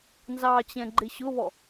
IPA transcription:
n z ɑ t͡ɕ ɛ̃ ɡ͡ǃ ɪ ɕ ʊ β ɔ

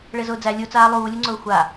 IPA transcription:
ɭ e z ʊː d͡z æ lʲ u t͡s aː lˠ uː lʲ u ŋ͡ǀ ʊː xʷ a

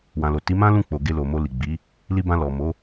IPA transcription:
w ã˨ l o˨ t i˨˦ m ã˦ l ũ˦˨ k͡p o˨ ɡ e˧ l o˨ m o˧ l i˨ ɡ͡b i˨˦ | l i˧ b ã˧ l ɔ˨ m o˨˦

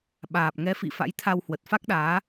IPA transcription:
ɓ aː˨˩ p̚ ŋ ɛ˨˦ f ḭ˧˨ f a̰˧˥ j t̪ʰ a˧ w h w ə˨˩ t̚ f a˦˥ k̚ ɗ aː˨˦

